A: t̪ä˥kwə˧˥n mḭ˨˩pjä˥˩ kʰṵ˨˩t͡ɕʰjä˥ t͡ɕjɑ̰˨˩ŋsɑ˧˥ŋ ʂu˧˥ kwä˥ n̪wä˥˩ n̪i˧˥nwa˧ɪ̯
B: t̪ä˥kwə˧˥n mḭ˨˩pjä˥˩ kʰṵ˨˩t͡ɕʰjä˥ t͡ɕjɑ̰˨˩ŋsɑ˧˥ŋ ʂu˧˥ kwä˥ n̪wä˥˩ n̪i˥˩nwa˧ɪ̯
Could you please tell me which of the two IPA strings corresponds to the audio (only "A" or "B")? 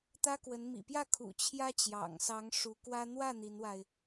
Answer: A